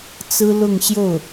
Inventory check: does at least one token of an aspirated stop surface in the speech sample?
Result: no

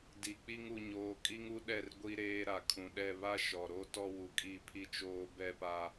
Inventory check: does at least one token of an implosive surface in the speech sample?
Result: yes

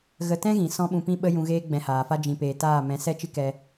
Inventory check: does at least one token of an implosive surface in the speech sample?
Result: yes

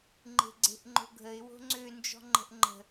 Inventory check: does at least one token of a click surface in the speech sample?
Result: yes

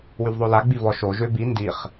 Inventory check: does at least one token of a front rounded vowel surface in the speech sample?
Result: yes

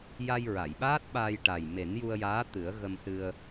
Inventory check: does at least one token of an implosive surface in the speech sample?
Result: yes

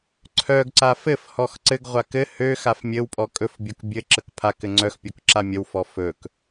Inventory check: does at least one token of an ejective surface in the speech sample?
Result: yes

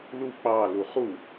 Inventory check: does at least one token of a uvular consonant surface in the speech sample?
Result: yes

